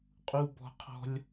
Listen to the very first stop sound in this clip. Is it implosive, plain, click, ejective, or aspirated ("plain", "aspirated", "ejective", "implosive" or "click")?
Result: ejective